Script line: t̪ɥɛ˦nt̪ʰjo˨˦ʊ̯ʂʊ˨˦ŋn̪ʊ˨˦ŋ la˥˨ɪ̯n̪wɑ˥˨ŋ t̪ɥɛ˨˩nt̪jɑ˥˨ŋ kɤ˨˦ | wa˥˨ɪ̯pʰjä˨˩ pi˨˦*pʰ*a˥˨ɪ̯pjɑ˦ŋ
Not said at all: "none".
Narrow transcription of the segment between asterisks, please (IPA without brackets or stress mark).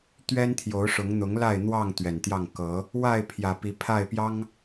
pʰ